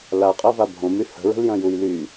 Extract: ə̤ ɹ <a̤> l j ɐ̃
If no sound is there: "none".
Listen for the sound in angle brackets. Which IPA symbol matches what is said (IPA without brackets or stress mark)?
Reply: ə̤